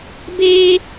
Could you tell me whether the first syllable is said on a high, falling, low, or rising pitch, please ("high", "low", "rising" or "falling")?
high